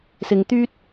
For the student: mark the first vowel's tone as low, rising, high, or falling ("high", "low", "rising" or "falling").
low